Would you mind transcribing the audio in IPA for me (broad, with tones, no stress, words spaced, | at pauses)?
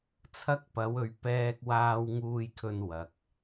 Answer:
t͡sʰɐ˧k̚ pɐ˨˧wɵ˨˧ɥ pɛː˧k̚waː˧w ŋuː˧jkʰɵ˧nwɐ˨k̚